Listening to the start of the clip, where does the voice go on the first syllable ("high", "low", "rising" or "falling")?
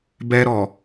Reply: high